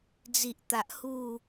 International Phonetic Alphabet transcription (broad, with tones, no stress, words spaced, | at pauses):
d͡zi˨ʔt̪a˨ʔ hu˥˧